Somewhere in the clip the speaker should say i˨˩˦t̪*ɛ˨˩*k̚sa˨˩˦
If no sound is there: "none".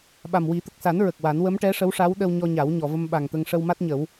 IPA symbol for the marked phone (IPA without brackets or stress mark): ə˨˩